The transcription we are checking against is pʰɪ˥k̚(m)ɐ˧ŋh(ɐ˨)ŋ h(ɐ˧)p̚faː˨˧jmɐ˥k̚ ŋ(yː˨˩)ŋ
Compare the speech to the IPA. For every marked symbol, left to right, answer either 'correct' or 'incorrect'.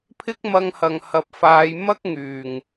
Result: correct, correct, incorrect, correct

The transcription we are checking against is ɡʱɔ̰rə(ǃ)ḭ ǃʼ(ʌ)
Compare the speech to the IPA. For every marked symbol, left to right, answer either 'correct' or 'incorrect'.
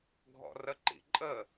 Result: correct, incorrect

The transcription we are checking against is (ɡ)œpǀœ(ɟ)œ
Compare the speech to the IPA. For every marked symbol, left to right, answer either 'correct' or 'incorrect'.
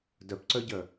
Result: incorrect, correct

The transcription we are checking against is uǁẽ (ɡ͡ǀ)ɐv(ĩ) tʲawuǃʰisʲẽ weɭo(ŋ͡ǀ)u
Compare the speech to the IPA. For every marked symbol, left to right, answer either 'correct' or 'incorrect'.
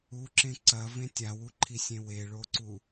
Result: incorrect, incorrect, incorrect

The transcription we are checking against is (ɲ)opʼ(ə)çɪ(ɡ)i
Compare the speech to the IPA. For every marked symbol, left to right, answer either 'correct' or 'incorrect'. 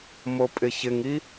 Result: incorrect, incorrect, incorrect

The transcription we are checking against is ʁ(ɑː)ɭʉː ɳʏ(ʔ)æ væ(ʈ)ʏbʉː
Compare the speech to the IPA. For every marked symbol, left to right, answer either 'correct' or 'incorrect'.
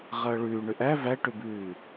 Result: incorrect, correct, correct

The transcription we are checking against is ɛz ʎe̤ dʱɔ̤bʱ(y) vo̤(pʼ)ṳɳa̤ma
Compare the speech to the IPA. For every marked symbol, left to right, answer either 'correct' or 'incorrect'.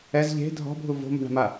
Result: incorrect, incorrect

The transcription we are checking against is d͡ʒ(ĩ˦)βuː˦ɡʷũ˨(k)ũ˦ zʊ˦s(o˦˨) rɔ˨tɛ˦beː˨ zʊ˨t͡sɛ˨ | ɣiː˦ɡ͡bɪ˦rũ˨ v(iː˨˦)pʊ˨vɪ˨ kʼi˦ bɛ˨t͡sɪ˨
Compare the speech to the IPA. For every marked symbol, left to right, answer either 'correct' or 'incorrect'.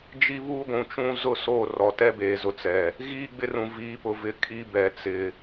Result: incorrect, incorrect, correct, correct

